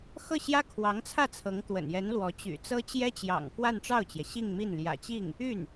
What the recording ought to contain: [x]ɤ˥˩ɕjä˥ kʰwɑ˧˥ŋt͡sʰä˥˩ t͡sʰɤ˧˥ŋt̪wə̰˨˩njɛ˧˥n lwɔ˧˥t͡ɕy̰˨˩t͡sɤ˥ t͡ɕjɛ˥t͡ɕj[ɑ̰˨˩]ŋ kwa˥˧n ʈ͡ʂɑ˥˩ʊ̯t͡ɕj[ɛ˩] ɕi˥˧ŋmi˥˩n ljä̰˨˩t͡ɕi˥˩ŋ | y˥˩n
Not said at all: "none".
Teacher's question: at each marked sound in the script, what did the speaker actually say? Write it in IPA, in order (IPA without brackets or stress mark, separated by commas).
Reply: x, ɑ̰˨˩, ɛ˩